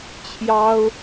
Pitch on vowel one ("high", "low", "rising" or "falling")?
high